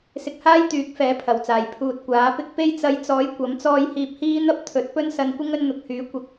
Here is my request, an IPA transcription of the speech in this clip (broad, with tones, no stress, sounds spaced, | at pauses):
s ɪ˧ k̚ h aː˥ j t̪ yː˨˥ k̚ f ɛː˨˥ pʰ ɐ˨˩ w t͡s aː˨˩ j pʰ uː˨ t̚ kʷ aː˨˥ p ɪ˥ k̚ p e˧ j t͡s ɐ˨˧ j t͡s ɔː˨˥ j kʷ ɐ˨˥ m t͡s ɔː˧ j h iː˧ p̚ h iː˥ n̪ ɐ˥ p̚ t̪ʰ ɵ˨˥ t̚ p ɵ˥ n s ɐ˧ n kʷ ɪ˥ ŋ ɵ˧ n n̪ ʊ˨ k̚ h yː˨˥ kʷ ɐ˨˥ k̚